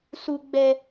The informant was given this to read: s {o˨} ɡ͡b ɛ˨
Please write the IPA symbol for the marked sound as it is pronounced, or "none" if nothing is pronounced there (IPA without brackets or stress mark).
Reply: u˨